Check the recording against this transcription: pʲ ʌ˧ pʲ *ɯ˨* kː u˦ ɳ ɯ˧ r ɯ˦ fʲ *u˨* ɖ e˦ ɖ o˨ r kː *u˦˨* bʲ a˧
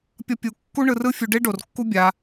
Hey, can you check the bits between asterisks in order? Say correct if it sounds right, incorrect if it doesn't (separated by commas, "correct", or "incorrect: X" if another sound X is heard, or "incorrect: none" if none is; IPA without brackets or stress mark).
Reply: incorrect: u˨, incorrect: u˧, incorrect: u˦